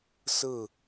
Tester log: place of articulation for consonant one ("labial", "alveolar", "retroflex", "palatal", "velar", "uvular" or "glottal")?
alveolar